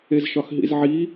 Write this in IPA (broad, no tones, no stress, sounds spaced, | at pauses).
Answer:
e z ʃ ɒ x ɦ ḭ z ʕ i